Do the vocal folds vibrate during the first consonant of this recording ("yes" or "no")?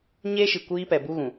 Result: yes